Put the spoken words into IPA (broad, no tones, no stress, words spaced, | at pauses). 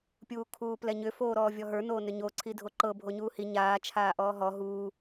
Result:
pʲuːkʰuːplɛɲʏ foːɾɔːvʲɔɦə˞ noːnʏɲo ǀʰidʱoǃɤ bʱoɲuːhi ɲaː t͡ʃʰaːʔɔːɦɔ ɦuː